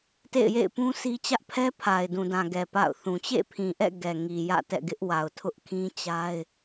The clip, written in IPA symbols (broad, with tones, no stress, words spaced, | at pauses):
tḛ˦˨ɪ̯jḛ˦˨ɪ̯ pũ˦sʰi˦ t͡ɕä˦ʔpʰɛ˦ pʰa˨ɪ̯dũ˨dã˨ɡɛ˨ pa̰˦˨ʊ̯θũ˨ t͡ɕḛ˦˨pʰĩ˨ʔɛ̰˦˨ ɡɛ˨ŋi˨jä̰˦˨tɛ̰˦˨ ɡɪ˦ʔ wa˨ʊ̯tʰʊ˦ʔ kʰĩ˦t͡ɕa˦ɪ̯